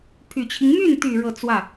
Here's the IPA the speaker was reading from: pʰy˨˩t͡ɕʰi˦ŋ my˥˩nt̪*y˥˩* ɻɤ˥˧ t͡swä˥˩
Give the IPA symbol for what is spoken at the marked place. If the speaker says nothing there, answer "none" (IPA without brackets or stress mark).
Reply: y˨˩